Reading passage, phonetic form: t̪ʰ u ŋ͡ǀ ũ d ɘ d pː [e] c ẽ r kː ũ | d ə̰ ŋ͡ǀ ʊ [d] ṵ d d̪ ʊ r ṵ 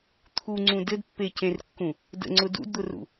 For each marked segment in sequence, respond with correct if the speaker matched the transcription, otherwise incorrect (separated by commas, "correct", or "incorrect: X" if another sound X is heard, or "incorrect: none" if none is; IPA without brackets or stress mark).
correct, correct